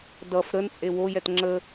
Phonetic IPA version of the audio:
d ʌ f ɾ ə n t͡sʼ e w o j ɛ t ŋ͡ǁ ə

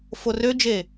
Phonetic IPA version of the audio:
f o r ø d͡ʒ e

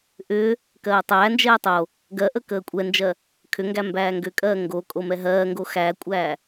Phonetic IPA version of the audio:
ʔ ʏː | k ɜː tˤ æː n d͡ʒ ɛː tˤ o | ɡ ɜ ʔ ə k əː kʷʼ ɛ n d͡ʒ ɜ | kʰ ʏ ŋ ɡ æ m b æː ŋ ɡ ʏ kʼ ɜː ŋ ɡ o kʼ o m ɛ ɦ ɜː ŋ ɡ o x æ kʷʼ æː

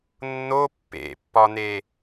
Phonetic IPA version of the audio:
nː o pː ḛ pː ɒ n e

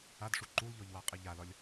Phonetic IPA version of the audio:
a d ʂ u ǃ u l ʎ ɔ ʎ w a qʼ i ʎ a l ɒ lʲ

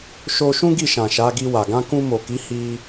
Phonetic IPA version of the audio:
ʃ o˧ ʃ ũ˦ ɡ i˦˨ ʃ ã˨ ʃ a˨˦ ɡ i˧ w a˨ ɡ ã˧ k ũ˧ m o˨ k i˨˦ h i˧

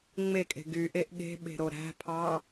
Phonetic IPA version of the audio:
ŋ͡m e kʼ e̤ ɡ y ʔ e ʔ ɠ e̤ ɓ e̤ ɾ o ɾ æ̤ pʰ ɑ

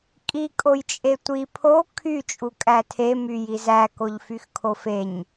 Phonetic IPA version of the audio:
kʼ i kʼ o j t͡ʃʼ e tʷ i pʰ o kʰ y t͡ʃʼ u kʼ æ tʰ e m y j i z æ k o ʎ f y x kʰ o f e ɲ

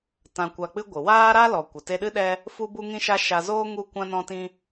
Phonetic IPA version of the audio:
t ã˧ kʷ a˧ k͡p ɨ˦ ɡʷ ɨ˨ w aː˦ ɾ a˦ l ɔ˨ kʷ ə˨ t e˧ ɗ ɨ˦ ɗ ɛ˦ | f u˦ b u˦ ŋ ĩ˦ ʃ a˦ ʃ a˧ z oː˦ ŋ u˦ kʷ ã˦ n ɔ̃˦ t ĩ˦

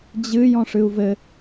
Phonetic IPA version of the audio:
d͡ʑ ɨ j ɔ̃ ʂ ɨ u̯ v ɘ

